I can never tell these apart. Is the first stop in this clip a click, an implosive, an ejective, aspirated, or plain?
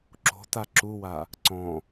click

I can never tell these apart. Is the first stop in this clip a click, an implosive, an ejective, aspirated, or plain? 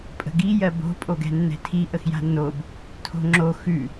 ejective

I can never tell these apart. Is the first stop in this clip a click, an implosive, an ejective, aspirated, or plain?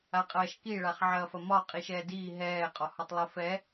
ejective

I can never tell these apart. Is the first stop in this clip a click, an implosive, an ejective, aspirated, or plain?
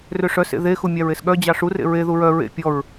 implosive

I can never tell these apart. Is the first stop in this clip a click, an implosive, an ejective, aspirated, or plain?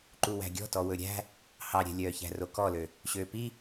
click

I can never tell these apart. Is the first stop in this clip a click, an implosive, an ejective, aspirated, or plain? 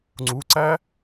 click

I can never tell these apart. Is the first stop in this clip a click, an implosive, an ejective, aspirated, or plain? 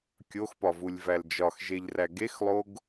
plain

